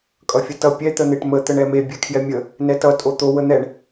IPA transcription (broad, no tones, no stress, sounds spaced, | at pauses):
kʼ ʌ fʲ ʌ t ʌ pʲ ɛ t̪ ə n̪ e ʈ m ə t̪ ə ɳ ɛ m e bʲ ɛ kʰ j ɛ mʲ ə | n ɛ t ʌ tʼ o t̪ o w ə n̪ ɛ ɳ